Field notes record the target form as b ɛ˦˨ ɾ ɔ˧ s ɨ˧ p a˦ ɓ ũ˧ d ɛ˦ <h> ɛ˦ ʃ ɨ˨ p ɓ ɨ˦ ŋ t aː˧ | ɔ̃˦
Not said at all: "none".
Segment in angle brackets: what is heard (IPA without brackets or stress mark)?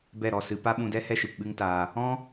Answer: h